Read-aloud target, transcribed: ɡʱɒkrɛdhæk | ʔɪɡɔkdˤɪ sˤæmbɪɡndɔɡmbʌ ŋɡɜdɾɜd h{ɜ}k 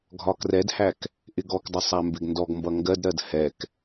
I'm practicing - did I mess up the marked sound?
yes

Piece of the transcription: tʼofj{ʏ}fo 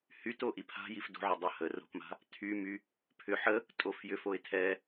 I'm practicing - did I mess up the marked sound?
no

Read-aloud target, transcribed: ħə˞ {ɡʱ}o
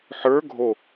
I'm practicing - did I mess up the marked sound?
no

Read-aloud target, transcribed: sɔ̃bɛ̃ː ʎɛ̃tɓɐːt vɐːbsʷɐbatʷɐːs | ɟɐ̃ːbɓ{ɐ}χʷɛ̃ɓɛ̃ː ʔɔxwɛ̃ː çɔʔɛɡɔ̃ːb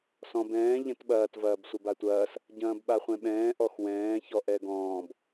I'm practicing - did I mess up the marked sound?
yes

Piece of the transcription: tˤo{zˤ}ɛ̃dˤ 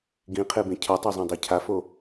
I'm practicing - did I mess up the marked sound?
no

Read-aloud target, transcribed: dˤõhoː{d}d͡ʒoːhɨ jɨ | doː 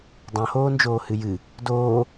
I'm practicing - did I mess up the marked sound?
yes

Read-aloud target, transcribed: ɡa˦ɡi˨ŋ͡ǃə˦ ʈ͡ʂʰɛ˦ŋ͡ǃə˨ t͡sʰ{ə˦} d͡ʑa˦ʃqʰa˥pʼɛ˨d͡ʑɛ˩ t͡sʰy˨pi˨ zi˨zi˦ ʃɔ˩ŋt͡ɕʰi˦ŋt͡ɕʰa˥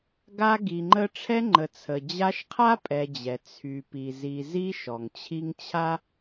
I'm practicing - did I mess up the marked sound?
yes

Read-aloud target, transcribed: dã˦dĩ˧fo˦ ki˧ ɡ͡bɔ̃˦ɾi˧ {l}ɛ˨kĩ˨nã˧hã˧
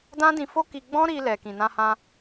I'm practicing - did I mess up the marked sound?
no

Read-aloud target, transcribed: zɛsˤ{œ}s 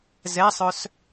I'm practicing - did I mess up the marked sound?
no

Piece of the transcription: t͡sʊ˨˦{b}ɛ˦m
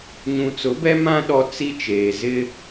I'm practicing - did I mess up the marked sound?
no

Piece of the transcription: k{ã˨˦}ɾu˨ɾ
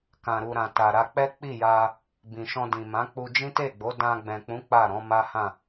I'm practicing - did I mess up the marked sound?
yes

